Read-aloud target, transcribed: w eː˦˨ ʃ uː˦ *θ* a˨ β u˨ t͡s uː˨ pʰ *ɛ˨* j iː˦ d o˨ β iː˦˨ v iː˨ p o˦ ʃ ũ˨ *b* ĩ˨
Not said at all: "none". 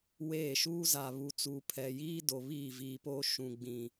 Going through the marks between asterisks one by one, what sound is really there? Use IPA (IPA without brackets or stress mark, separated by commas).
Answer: z, ɛ˨, ɡ͡b